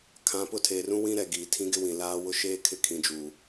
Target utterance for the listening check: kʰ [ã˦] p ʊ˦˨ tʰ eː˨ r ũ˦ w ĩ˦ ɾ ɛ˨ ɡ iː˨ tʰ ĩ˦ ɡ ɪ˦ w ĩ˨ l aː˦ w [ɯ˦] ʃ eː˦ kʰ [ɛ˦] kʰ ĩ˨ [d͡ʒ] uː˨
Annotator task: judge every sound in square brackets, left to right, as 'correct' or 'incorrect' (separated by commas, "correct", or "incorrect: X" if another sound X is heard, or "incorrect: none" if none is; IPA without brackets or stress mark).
incorrect: ã˨, incorrect: ʊ˦, incorrect: ɪ˦, correct